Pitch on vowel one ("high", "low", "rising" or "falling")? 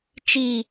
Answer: low